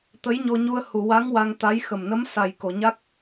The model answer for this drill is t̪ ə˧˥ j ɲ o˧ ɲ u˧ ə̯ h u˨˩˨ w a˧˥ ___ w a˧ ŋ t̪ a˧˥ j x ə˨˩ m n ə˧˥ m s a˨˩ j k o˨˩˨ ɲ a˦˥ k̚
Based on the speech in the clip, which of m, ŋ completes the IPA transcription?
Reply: ŋ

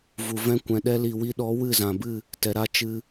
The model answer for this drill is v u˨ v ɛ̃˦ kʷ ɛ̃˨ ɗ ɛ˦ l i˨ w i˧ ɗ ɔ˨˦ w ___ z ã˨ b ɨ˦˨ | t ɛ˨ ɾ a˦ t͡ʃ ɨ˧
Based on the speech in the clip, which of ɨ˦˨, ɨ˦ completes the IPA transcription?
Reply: ɨ˦˨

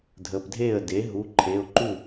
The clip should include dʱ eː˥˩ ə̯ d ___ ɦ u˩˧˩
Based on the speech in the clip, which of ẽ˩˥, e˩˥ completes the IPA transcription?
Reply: e˩˥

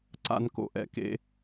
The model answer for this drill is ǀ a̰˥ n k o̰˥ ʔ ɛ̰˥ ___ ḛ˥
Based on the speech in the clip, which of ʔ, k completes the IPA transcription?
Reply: k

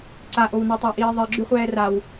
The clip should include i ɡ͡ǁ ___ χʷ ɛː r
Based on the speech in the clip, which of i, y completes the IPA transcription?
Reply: y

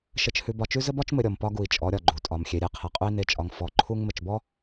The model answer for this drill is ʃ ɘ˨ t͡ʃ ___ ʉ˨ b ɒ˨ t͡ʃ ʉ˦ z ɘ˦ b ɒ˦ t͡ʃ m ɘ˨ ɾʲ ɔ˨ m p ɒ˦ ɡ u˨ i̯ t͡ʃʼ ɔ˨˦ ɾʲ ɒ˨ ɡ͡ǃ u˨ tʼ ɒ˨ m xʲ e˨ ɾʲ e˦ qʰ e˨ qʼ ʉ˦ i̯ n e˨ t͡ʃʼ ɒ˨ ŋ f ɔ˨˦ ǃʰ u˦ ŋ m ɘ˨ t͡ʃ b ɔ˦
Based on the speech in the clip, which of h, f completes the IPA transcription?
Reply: h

